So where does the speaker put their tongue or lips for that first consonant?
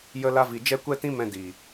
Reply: palate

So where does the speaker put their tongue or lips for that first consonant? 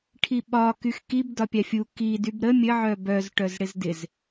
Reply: retroflex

